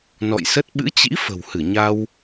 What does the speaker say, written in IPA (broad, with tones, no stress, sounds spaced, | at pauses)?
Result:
n ɔ̰˧˨ j s ə˦˥ t̚ ɓ ɨ̰˧˥ t͡ɕ ḭ˧˥ f ə̤˨˩ w h ɨ˧˩ ɲ a˧ w